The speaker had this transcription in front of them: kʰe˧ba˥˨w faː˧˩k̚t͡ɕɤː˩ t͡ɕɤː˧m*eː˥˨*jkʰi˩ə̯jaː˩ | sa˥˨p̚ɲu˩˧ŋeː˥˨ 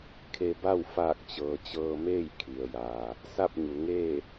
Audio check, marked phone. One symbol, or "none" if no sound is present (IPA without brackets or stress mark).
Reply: eː˥˨